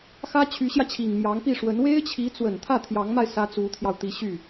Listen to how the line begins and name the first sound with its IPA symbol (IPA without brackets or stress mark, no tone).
x